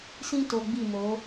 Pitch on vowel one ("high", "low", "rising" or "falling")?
high